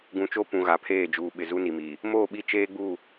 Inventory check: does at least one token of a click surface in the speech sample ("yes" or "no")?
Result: no